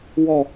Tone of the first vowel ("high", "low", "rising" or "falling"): falling